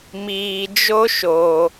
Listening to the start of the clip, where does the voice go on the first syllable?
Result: low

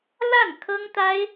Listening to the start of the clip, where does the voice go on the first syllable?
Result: falling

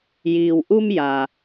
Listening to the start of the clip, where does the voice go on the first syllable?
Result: low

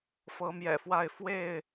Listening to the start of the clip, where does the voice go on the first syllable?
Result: rising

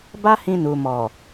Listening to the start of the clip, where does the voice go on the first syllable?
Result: high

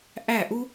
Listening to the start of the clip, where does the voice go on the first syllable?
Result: falling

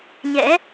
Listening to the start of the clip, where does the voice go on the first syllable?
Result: rising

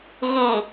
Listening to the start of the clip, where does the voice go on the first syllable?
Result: low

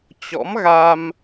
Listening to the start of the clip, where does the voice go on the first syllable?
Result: rising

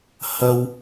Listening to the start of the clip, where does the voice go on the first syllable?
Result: high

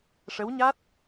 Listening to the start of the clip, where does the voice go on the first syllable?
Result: rising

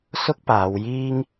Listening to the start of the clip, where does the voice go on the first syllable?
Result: high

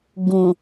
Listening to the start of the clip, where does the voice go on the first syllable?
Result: low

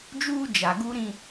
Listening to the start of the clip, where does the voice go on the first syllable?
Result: high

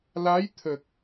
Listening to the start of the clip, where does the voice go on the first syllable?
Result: rising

